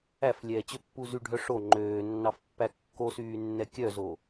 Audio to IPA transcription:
æflʲɛːt͡ɕøpːu zyɖʱœ ʂo ŋ͡ǃøːnːɑfpːæ kːosyːnːɛ kʲœzo

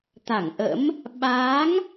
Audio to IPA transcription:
t̪a˧˩ŋʔə̰˧˥m | ɓaː˨˦ŋ

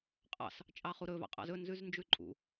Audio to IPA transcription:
qʼɑ̰s | t͡ʃʼɑχuɾɵ vɑ̰qʼɑ̰zɵ nzʉznd͡ʒʉǃʼṵ

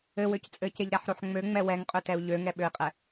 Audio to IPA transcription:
ɘwøc t͡sʼɘceʎɾæħɾoħ ŋ͡møŋ͡mɛ wɛŋqʼøtɛu̯ ʎøŋɛɓøi̯qʼɛ

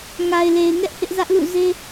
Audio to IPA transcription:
ŋa˨ɪ̯le˨ɪ̯ŋɛ˦ʔ hɪ˦ʔzä˦ʔlṵ˦˨ ze˦

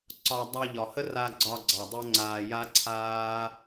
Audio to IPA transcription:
ǀɒ˨ dˤa˧ʎɒ˨hə˦ ra˧ɡ͡ǀɒ˧ɡ͡ǀɑ˨ dˤə˦ŋ͡ǀaː˧ ja˦ǀʰaː˦

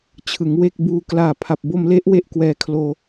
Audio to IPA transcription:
t͡ɕʰɯ˩˦ŋwe˥˩k̚buː˧ klaː˨˩pʰa˨˩p̚bo˧mle˦˥ʔ we˥˩ʔkwɛː˧kʰloː˧

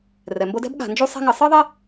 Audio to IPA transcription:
rɛ˩mbo˦dɛ̤˥b ɠa̤˨nd͡ʒu˥sˤɛ̤˥ ŋɨ˨sˤɨ˥ðˤe˥

